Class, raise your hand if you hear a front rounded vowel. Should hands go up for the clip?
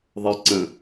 no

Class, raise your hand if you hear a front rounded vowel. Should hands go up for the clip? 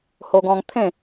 no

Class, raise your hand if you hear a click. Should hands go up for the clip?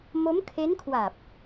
no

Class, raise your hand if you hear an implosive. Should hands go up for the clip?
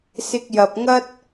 no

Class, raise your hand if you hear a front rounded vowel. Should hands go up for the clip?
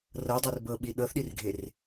no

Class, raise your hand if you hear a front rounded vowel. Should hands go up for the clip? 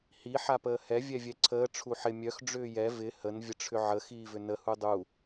yes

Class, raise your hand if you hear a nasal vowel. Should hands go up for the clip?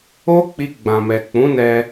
yes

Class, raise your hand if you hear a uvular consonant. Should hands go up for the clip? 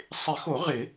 yes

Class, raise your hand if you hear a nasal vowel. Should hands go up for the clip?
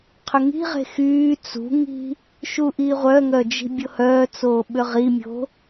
no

